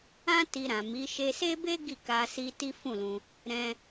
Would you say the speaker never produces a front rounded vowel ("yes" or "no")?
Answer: yes